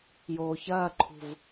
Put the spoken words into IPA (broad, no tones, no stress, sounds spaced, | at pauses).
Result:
j oː ç ɐː ǃʰ ṳ v